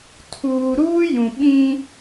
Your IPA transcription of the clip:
tʰ uː˨ ɾ uː˦ j ũ˨ ɓ ĩ˦

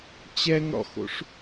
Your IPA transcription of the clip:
t͡ɕ ɛ ŋ ɽ ɔ̰ x o̰ ʂ

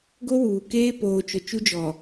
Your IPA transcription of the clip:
ɡ o˦ w uː˨ k eː˦ p oː˨ t͡ʃ ʊ˨ t͡ʃ u˦ d͡ʒ ɔ˨

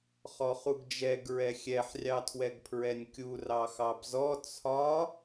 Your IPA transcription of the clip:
χ ɔ χ u ɡ d͡ʒ ɛ ɡ ɹ ɛ xʲ ɛ ħ rʲ ɑ tʰ w ɛ ɡ pʰ ɹ ɛ nʲ kʲ u r ɑ x ɑ b z ɔ t͡sʰ ɒ

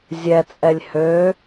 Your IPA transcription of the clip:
zʲ ɛ t͡sʼ ɛ lʲ h ø

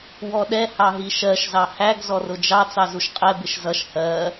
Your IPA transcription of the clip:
w ɔ ɗ ɛ h ɑ ɦ i ʃ ɜ ʃ z ɑ h æ ɡ z ɔ r ʊ d͡ʒ ɑ t͡s ɑ z u ʃ qʼ ɛ b ɪ ʃ z ʌ ʃ h ɜ

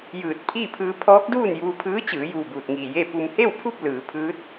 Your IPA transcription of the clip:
j ɯː˧˩ t̚ pʰ iː˥˨ pʰ ɯː˧ pʰ ɔː˧˥ k̚ d uː˥˨ n j uː˧ pʰ ɯː˧˥ t͡ɕ ɯː˩˧ j uː˧˩ b uː˧˩ t̚ ŋ iː˧˩ j e˥˨ p u˧ m h e˥˨ w pʰ u˥˨ p̚ l ɯː˩˧ pʰ ɯː˧˥ t̚

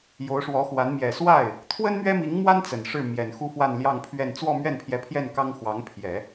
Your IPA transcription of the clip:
j o˧˥ ʊ̯ ʂ w ɔ˧˥ x w a˧˥ n m j ɛ˨˩ s w a˥˩ ɪ̯ | t̪ʰ w ə˥ n m ɥ ɛ˥ m i˧˥ ŋ m w a˥ n t͡s ə˨˩ n ʂ ɻ̩˥˩ m j ɛ˨˩ n x u˥ f w a˥˧ n l j ɑ˥˧ ŋ pʰ ɥ ɛ˥˧ n t͡s w ɔ˥˧ m ɥ ɛ˥˩ n pʰ j ɛ˧˥ pʰ j ɛ˥˩ n k ɑ˥ ŋ x w ɑ˧˥ ŋ pʰ j ɛ˨˩˦

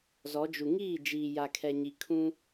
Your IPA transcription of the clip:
z ɔ˨˦ d͡ʒ u˨ ŋ iː˦˨ d͡ʒ iː˨ j a˨ kʰ ɛ˨ ɲ i˨ kʰ ũ˦

